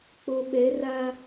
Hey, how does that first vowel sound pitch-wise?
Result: low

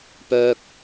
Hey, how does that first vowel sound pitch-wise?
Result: low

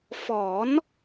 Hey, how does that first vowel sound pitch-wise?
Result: rising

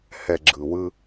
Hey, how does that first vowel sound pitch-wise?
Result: low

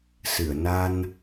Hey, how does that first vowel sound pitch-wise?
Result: low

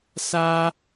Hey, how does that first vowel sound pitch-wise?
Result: high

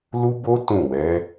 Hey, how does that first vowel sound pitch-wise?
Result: high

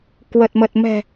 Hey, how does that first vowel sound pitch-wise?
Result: low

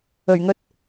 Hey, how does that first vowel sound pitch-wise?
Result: low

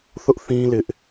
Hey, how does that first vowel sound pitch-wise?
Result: high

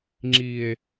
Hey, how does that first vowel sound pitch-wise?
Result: low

